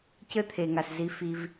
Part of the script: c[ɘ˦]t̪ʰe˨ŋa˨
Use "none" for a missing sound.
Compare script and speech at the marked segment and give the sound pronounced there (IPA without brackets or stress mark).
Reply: ɘ˦